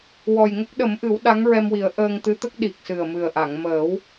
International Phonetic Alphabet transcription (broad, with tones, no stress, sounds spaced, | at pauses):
w ɔ˨˩ j ŋ ə˦˥ k̚ ɗ ə˨˩˦ m ʔ ɨ˨˩˦ w ɗ a˧˥ ŋ ɹ ɛ˧ m w i˨˩˦ ə̯ ʔ əː˧ ŋ t̪ ɨ˧˥ t̪ ə˦˥ k̚ ɗ i˨˩ k̚ s ɨ˨˩ ə̯ m ɨ˨˩ ə̯ ʔ a˨˩˨ ŋ m əː˨˩˦ w